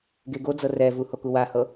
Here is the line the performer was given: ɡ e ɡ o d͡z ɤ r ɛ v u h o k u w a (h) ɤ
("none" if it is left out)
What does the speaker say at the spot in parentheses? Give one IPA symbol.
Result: h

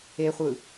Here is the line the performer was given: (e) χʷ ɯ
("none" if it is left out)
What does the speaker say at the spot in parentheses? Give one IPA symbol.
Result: e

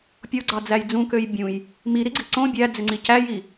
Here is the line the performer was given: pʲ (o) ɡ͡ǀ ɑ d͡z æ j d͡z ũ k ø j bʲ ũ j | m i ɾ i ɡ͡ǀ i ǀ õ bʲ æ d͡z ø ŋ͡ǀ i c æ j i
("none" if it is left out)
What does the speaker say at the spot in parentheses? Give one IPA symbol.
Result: o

